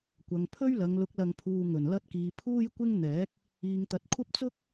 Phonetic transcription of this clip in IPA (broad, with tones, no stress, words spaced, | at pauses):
kʷɐ˨˧ŋ pʰɵ˥ɥlɐ˨˧ŋlʊ˨˥k̚ lɐ˧ŋpʰuː˧ ŋɵ˨˩nlɐ˧t̚ kiː˨˧pʰuː˥jkʷɪ˥ŋn̪ɛː˨˥k̚ | iː˨ŋt̪ɐ˨t̚ kʷʰɐ˥p̚ t͡sʊ˥k̚